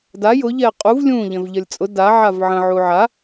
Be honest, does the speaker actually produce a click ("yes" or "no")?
no